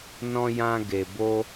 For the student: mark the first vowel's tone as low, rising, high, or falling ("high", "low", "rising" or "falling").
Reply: high